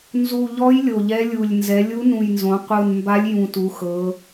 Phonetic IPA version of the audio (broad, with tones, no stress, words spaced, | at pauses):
nzu˨˩ʎɔ˧˥j lʲo˨˩ʎɛ˧˥lʲu˨˩lʲ nzɛ˩˧lʲu˧˥nũ˨˩jnzõ˩˧ qʷɯ˨˩nmba˧˥lʲ jũ˨˩tu˩˧xɤ˩˧